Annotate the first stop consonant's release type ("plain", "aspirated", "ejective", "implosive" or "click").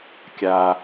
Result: plain